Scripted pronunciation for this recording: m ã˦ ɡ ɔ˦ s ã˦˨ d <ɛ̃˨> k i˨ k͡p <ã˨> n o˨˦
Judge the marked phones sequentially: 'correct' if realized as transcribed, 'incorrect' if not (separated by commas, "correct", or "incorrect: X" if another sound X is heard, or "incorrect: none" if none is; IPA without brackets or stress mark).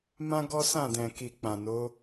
correct, correct